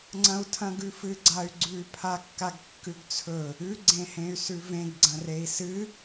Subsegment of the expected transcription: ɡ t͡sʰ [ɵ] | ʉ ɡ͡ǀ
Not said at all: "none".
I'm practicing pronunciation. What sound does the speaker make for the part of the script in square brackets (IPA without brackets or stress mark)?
ɵ